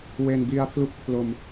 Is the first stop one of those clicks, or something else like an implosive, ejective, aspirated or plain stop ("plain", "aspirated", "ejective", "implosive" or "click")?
plain